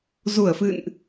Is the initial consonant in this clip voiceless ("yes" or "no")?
no